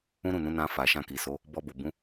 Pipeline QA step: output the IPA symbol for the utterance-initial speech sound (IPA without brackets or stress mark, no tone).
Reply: ũ